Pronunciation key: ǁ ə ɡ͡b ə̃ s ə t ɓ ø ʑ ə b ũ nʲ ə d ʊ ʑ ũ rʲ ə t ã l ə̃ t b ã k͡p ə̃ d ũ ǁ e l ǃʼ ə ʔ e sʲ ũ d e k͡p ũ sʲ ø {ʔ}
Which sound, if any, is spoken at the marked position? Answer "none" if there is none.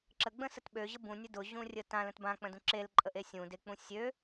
none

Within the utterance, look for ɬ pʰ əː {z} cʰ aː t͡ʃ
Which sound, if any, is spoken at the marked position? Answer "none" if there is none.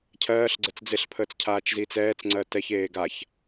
t͡s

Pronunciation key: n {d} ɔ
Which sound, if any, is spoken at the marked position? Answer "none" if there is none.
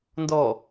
d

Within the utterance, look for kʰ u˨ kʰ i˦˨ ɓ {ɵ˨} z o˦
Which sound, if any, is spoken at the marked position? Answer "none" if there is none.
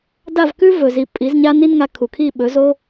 ɵ˨˦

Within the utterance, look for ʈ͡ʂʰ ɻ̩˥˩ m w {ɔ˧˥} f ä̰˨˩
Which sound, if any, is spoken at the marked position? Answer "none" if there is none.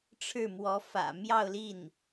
ɔ˧˥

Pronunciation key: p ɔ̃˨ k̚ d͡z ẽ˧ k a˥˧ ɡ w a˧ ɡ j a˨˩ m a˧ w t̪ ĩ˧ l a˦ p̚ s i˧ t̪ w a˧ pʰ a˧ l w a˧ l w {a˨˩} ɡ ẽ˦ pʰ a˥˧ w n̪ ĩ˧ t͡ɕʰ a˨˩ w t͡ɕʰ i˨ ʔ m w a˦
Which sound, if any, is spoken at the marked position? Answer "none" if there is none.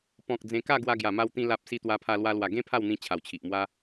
a˨˩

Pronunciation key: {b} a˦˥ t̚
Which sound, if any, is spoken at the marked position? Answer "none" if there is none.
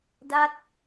d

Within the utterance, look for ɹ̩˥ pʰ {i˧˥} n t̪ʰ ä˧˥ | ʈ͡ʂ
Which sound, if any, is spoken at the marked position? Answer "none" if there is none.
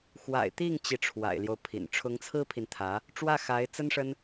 i˨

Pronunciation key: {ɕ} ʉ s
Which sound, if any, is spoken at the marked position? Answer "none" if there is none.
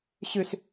ɕ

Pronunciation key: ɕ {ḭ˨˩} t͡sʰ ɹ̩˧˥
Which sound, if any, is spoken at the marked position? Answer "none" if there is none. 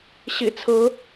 ḭ˨˩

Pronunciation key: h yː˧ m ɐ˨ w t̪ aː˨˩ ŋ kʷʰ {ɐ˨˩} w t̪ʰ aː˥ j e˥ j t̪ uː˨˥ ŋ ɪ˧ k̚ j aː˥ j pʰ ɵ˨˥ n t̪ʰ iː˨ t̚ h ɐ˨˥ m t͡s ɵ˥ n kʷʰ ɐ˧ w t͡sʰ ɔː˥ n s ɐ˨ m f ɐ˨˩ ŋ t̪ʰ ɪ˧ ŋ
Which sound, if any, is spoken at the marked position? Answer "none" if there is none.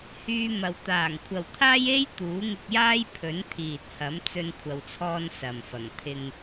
ɐ˨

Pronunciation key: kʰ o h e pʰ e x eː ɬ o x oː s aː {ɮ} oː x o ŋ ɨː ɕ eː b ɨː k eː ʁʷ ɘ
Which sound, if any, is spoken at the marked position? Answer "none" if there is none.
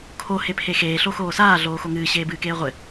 ɮ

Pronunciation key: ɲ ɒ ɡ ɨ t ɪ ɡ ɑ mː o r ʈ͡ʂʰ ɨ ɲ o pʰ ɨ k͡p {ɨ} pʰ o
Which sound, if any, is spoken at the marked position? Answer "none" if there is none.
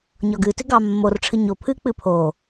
ɨ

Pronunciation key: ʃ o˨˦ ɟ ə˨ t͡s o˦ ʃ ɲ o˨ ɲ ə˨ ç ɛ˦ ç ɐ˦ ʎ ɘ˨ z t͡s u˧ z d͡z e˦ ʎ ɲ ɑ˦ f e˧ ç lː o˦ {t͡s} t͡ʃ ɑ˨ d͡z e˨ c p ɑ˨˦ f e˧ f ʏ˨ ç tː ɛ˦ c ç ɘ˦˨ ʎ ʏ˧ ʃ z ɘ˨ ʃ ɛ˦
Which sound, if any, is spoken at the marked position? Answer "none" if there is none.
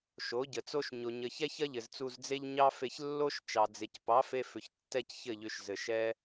ʃ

